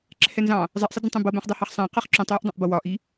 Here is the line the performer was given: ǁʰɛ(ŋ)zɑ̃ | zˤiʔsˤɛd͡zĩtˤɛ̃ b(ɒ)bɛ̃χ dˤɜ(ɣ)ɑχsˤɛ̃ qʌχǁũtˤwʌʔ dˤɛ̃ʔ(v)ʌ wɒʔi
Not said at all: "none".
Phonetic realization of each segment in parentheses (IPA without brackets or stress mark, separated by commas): n, ʌ, h, b